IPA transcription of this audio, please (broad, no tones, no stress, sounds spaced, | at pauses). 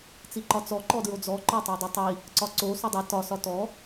t͡s i ǃ ɒ t͡s ɔ ǃ ɔ d ɹ o d͡z ɔ ǃ ɒ tˤ o dˤ i tˤ i | ǀ ɒ ǀ o s o dˤ i t ɒ s ɒ t ɔ